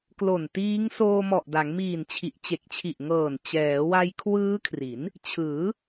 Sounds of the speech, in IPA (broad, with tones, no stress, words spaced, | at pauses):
klo˨˩ntiː˦˥ŋ soː˧mɔ˨˩ʔda˩˦ŋmiː˨˩n t͡ɕʰi˨˩ʔt͡ɕe˨˩k̚t͡ɕʰi˨˩ʔŋɤː˨˩n t͡ɕɛː˩˦wa˧j kʰwɯː˦˥kʰri˩˦n | t͡ɕʰɯː˩˦